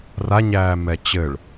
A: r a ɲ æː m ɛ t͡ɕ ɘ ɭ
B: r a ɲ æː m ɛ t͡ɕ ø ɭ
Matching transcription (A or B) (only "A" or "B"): A